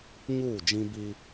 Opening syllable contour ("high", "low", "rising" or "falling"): falling